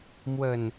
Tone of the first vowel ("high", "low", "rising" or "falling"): falling